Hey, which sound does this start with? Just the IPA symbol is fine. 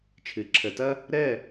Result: t͡ʃʰ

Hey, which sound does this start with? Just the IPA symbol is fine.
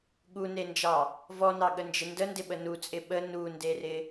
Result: ɠ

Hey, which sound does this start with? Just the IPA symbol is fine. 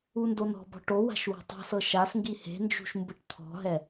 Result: u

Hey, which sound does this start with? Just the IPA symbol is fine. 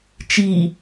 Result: t͡ʃ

